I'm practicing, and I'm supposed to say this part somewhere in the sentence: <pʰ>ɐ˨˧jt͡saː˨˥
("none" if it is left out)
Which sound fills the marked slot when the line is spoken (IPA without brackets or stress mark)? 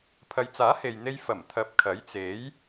pʰ